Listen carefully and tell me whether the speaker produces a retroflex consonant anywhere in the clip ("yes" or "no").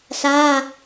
no